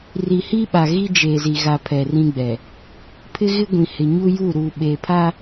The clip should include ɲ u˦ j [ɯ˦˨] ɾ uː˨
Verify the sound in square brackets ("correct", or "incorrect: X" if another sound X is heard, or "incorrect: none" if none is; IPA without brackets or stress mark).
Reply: incorrect: u˦˨